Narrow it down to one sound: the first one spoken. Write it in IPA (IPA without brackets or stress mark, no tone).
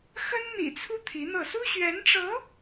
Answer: x